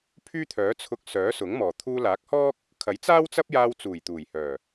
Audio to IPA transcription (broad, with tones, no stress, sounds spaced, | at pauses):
pʰ yː˥ t̪ʰ œː˨˥ t͡sʰ ʊ˧ k̚ s œː˨˥ s ʊ˨˥ ŋ m ɔː˨˩ t̪ʰ uː˧ l aː˨˥ k̚ h ɔː˥ k̚ | kʰ ɐ˨˥ j t͡s aː˥ w t͡s ɐ˥ p̚ j aː˧ w t͡s uː˨˩ j t̪ uː˨˩ j h œː˨˩